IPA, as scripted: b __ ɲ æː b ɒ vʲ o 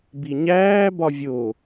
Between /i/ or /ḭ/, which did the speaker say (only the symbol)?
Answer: i